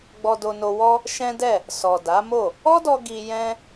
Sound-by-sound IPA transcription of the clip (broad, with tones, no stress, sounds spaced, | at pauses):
ɡ͡b ɔ˧ d o˧ n o˧ w ɔ˦ | ʃ ɛ̃˦ d ɛ˦˨ | s ɔ˨ d a˨˦ m o˦˨ | ɔ˦ d ɔ˧ ɡ i˧ j ɛ̃˦